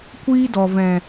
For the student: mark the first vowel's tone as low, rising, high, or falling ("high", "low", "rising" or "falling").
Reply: high